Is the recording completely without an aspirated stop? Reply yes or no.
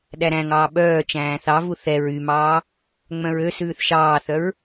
yes